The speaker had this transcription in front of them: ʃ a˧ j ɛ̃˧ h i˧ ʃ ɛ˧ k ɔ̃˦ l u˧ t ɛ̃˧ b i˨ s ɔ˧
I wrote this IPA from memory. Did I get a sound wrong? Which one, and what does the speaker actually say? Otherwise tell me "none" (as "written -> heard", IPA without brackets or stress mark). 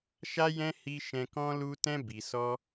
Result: ɛ˧ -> ɛ̃˧